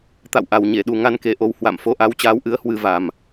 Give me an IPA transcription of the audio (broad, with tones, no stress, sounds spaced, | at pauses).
t̪ a̰˧˨ w ʔ a˨˩ w ɲ e˧˩ ɗ u˨˩ ŋ a˧ n k e˨˦ ʔ o˨˦ w h w a̰˧˨ m f o˨˦ ʔ a˨˦ w t͡ɕ aː˨˦ w ʔ ɨ˨˦ ə̯ h w ɨ˧ v a˨˩ m